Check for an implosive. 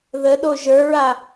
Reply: present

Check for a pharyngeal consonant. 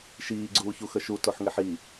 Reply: present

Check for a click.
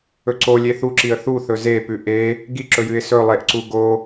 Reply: present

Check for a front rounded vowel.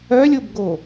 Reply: present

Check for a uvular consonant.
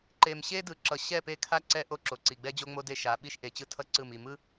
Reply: absent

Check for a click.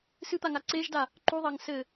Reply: present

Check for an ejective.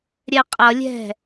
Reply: present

